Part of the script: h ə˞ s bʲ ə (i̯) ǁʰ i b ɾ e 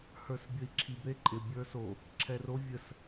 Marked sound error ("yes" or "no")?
no